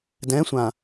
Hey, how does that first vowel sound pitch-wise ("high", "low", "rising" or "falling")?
rising